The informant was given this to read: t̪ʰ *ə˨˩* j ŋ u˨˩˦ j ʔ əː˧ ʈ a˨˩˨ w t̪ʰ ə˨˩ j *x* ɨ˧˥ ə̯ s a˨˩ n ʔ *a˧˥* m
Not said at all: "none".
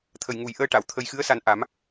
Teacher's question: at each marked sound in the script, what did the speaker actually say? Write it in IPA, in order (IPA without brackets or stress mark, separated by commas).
ə˨˩, x, a˨˩˦